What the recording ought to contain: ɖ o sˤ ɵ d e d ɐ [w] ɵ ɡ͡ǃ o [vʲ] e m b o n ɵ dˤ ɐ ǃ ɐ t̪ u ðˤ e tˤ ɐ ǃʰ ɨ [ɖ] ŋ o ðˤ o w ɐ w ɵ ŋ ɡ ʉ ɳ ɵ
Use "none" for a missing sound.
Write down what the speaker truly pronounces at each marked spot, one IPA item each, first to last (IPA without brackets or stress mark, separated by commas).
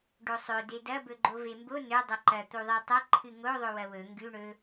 b, v, none